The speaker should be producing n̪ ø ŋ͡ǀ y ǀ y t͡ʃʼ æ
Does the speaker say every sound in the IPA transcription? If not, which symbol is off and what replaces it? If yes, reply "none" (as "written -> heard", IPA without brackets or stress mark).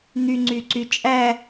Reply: ø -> y